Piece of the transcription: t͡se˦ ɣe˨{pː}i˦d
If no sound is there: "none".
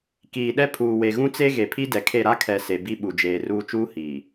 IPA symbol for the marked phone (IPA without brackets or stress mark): pʰ